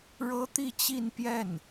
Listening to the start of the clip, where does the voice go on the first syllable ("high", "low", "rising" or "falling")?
high